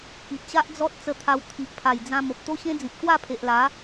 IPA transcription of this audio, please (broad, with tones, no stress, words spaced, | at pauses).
ki˨t̚ɕa˦ʔ d͡zɔ˦t̚ t͡sə˧t̪ʰa˧w t̪ʰi˨ʔpʰa˨˩jd͡zã˧ mo˨p̚t̪o˦ɕẽ˦d͡zĩ˨p̚ kwa˥˧pʰe˨ʔla˨˦